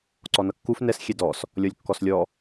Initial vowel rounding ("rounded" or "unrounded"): rounded